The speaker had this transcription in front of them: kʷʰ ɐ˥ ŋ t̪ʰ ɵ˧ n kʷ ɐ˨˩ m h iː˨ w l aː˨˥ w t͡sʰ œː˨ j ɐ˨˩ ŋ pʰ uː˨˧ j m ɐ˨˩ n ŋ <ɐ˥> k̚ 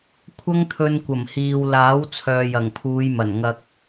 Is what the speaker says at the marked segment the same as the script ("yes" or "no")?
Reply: no